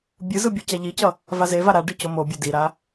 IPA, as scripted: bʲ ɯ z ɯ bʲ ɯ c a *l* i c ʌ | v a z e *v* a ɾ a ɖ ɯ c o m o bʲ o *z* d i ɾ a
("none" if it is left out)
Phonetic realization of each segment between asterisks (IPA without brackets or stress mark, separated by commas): ʎ, v, none